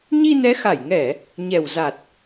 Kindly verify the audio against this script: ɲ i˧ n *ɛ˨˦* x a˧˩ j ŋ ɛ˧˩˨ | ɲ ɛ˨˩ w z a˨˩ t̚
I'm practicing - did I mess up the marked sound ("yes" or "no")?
no